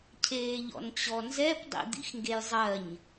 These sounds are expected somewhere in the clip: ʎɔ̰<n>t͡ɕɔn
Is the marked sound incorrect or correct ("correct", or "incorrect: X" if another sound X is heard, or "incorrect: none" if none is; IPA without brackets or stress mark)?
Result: correct